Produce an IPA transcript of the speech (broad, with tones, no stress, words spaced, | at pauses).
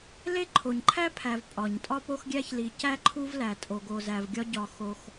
le˥ǃʰo˩ɲǃʰæ˥pʰæ˩v pʼɒ˩ɲ tʼɒ˥po˥xɡʲæ˥ç li˩cæ˥ ǃʰu˥vlæ˩ tʼo˩ɡo˩zæ˩v ɡʲɒ˥ɟɒ˩ xo˩x